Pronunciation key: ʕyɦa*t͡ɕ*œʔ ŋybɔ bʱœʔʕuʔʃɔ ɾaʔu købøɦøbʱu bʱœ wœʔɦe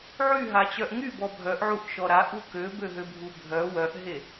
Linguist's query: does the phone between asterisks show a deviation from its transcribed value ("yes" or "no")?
no